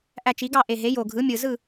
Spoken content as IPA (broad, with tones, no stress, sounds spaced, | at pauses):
ʔ æ˧ t͡ʃ i˩˥ ɡ ɑ˥˨ ʔ e˨˩ ɦ e˩˥ j o˨˩ ɡʱ ɯ˩˥ mʲ ɯ˨˩ z ɯ˥˨